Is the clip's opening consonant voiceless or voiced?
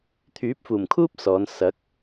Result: voiceless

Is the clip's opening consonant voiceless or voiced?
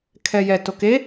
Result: voiceless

